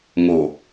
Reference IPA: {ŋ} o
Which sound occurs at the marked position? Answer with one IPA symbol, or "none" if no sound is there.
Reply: ŋ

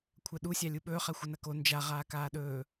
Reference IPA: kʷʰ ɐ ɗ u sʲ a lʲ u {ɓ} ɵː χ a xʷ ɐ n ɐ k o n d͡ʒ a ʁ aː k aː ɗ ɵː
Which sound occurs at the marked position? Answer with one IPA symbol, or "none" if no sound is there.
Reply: ɓ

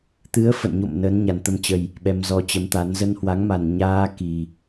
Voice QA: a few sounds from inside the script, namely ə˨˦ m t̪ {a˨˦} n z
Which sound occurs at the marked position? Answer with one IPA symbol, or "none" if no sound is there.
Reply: a˨˦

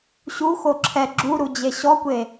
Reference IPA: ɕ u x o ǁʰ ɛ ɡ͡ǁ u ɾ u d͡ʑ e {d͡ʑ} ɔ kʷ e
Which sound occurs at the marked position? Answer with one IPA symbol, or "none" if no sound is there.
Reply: ɕ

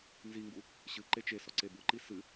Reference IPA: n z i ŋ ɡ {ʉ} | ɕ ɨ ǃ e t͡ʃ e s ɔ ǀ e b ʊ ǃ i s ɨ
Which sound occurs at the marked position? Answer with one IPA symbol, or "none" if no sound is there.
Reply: u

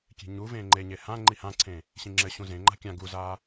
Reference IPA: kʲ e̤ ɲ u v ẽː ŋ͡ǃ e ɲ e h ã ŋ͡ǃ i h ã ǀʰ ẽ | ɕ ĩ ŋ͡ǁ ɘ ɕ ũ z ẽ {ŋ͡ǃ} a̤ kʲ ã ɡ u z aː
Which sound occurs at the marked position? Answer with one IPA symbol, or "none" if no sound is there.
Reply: ŋ͡ǃ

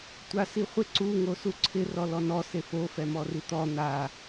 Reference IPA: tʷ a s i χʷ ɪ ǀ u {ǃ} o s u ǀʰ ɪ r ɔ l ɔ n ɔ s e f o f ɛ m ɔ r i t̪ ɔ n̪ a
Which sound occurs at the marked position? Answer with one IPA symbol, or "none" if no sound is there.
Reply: ŋ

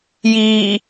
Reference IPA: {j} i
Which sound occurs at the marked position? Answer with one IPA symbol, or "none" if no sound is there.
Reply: j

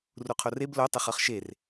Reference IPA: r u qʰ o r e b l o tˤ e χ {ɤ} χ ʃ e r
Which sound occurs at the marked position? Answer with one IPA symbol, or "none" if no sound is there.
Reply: ɤ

